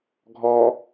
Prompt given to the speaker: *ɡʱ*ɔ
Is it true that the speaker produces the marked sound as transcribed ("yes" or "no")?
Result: yes